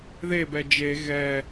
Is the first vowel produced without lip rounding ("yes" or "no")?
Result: yes